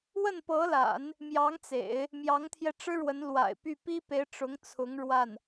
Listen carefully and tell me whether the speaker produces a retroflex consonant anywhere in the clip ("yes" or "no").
yes